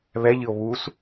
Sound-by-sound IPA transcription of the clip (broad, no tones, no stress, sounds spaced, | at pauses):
β ɛ ʎ ɨ o̯ β u s